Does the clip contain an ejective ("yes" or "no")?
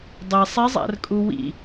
yes